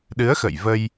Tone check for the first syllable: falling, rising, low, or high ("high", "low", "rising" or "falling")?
rising